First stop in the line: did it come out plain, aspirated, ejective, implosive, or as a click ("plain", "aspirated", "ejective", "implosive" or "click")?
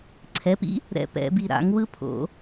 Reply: click